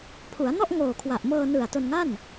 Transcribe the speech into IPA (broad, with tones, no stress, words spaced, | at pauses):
pʰu˩˦a̯nɔ˥˩ʔ ŋoː˨˩kʰwa˨˩ʔ mɤː˧nɯ˨˩a̯to˧nŋa˥˩n